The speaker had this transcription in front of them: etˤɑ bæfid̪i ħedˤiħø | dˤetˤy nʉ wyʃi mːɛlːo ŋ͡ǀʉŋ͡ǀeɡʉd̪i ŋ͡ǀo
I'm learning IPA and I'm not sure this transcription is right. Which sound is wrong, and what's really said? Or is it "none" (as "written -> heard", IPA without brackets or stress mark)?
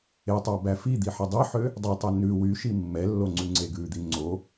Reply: none